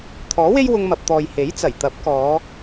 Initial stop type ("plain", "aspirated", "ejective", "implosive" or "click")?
aspirated